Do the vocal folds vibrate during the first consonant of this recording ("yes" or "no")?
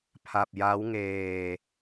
no